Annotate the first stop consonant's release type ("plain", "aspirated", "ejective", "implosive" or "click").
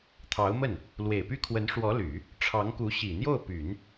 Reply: aspirated